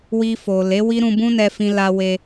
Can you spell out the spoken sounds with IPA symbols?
w i˧ f o˨ l e˨˦ w i˦ ɾ ũ˧ b ũ˦ n ɛ˧ f ĩ˧ l a˧ w e˧

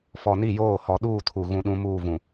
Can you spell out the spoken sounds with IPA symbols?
f ɔ˨ n i˦˨ j oː˦˨ h ɔ˨ ɗ uː˦˨ tʰ u˨ ɣ ũ˦ ɗ ũ˦ m uː˦˨ v ũ˨

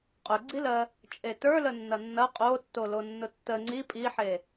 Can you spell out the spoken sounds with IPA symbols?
qʼ ʊ ɡ͡ǀ i l ɜ | t͡ʃʼ e t ə˞ l ə nː ɐ nː ɐ qʼ o tː o l o nː ʊ tː ə ŋ͡ǀ i pʼ i ħ e

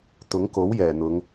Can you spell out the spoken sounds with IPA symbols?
t̪ ʊ˨˥ ŋ k o˨˥ w j ɛː˨˩ n̪ ʊ˨˧ ŋ

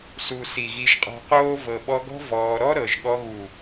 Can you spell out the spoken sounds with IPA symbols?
s u˨ s i˨ ɣ i˧ ʒ qʼ ɔ̤˧ q oː˦ v ɤ˨ ɓ ɔ˧ ɡ ɔ̤˦ v ɔː˧ ɾ ɔ˦ ɾ ɤ˨ ʒ ɠ ɔ˧ ɣ u˨

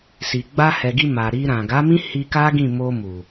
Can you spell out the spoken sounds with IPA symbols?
s i˨ ɡ͡b a˧ h ɛ˨ ɡ i˧ m a˨ ɾ i˧ ɾ ã˨ ɡ a˨˦ m ĩ˦ h i˧ k a˦ ɡ ĩ˦˨ m o˧ m u˨

